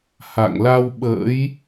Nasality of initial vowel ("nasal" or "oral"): oral